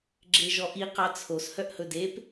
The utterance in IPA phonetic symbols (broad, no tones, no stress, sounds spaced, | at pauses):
ɡ͡ǁ e ʒ ɔ ʔ i q ɑ t͡sʰ o s h œ ʔ h ɵ d e p